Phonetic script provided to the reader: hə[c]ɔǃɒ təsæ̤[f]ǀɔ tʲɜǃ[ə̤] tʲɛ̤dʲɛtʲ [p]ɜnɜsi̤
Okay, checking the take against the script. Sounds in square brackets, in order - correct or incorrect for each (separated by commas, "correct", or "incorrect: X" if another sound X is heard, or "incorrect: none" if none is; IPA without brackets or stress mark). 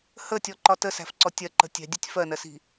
incorrect: tʲ, correct, correct, incorrect: f